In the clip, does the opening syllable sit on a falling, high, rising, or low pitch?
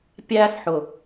high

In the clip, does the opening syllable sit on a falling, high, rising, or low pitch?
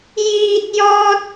low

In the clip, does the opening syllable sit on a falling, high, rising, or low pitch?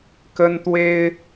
high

